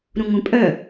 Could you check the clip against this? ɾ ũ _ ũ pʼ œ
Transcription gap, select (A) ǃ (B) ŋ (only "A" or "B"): B